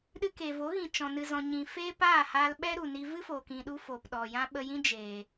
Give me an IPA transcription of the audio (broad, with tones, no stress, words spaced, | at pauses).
ɗɨ˧keː˨vo˨˦ɣĩ˨ t͡ʃɔ̃˨ nɨ˨zɔ̃˨ɲĩ˨ feː˦paː˦˨haː˧lɓɛ˦ ɾu˨ni˧ vɨ˦foː˨kĩ˨ɗu˧ foː˨pɗɔ˨jã˦ ɓə˧jĩ˦ d͡ʒeː˨